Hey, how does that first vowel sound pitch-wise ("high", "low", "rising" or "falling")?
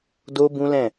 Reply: high